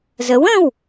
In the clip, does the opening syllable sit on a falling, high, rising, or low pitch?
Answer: rising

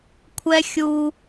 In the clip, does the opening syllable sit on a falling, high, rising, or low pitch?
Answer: high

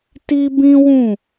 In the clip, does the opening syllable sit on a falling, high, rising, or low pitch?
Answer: high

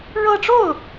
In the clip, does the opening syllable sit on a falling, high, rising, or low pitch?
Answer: high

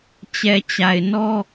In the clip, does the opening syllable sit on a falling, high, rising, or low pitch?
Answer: low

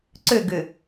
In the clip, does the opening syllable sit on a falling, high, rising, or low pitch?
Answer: falling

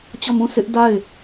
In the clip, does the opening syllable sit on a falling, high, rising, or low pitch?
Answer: falling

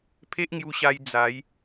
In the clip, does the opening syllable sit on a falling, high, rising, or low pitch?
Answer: high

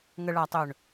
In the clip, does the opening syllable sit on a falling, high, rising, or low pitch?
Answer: low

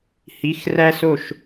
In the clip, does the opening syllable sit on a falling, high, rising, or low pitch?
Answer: rising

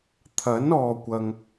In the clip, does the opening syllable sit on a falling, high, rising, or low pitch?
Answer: rising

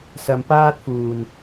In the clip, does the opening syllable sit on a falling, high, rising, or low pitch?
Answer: low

